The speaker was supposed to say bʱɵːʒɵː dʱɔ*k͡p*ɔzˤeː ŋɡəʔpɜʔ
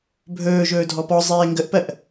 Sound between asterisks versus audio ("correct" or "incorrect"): incorrect